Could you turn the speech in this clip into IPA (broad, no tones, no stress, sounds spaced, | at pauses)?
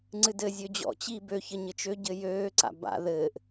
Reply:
ŋ͡ǀ ɨ d ɘ zʲ ø d͡ʑ ɔ̰ t͡ɕ i b ø ç ə ɲ ɘ t͡ʃ ø ɟ ɘ j øː ǀ a̰ b a̰ ð ɘː ʔ